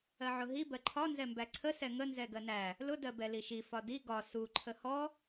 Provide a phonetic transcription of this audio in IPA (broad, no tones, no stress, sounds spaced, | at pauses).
ɜ ʕ ʊ ɦ i b ɜ ǃʰ ɒ n z ɛ m b æ ǀʰ ə s ɛ ŋ ə n z ɛ ɡ ɜ n æ | l ʊ d ɜ b ɛ l i ʃ i f ɒ d i ɡ ɒ s u ǃʰ ə h ɔ